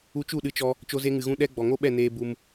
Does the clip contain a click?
no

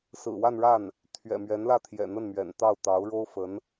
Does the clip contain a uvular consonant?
no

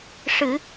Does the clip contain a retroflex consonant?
yes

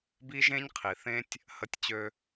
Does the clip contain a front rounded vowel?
yes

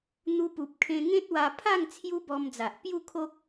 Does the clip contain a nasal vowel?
yes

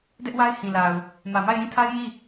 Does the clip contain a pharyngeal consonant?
no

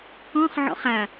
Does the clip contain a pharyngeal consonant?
yes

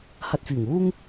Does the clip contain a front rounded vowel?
yes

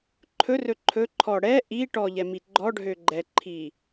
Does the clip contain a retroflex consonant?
yes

